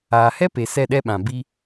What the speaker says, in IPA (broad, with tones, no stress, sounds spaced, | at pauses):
aː˨ h ɛ˦ p e˨ s ɛ˦˨ ɗ ɛ˦ ɓ ã˨ b i˧